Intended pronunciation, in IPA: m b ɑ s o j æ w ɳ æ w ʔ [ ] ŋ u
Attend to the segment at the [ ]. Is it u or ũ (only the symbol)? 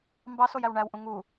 ũ